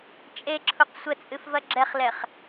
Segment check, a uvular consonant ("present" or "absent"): present